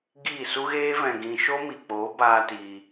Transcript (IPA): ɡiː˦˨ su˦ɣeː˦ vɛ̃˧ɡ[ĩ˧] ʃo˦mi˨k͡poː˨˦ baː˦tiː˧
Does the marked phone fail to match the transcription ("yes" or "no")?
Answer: no